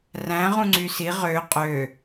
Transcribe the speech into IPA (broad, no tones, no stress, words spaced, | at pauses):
ræ̃ ʁũŋ͡ǀysi ʁø qʼø